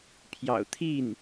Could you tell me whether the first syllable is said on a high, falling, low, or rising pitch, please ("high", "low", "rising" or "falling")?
low